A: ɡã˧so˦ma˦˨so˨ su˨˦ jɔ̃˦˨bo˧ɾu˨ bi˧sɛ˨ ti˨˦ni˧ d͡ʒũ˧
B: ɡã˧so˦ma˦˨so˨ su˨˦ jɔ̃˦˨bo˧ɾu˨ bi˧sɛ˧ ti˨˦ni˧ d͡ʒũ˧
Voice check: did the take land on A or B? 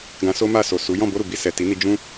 A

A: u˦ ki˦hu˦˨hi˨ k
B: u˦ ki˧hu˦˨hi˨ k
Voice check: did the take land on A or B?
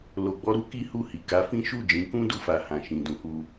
A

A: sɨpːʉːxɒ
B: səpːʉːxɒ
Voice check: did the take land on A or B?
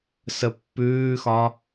B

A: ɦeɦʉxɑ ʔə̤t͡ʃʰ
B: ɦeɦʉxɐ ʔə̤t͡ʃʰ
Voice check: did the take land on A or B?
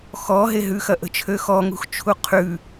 B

